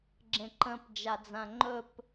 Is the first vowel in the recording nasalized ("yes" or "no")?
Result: yes